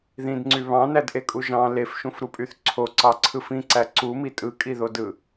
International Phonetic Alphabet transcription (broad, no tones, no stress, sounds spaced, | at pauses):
ð ĩ d ŋ͡ǀ y β ɑ̃ n æ d ʔ e kʼ u ʒ ɑ̃ l e f ʃ ũ f ɾ u pʼ y θ ǀʰ o ǀ ɑ ǀʰ ɯ f ĩ ǀ æ ǀ u m i tʼ ɯ kʼ i ð o d ɯ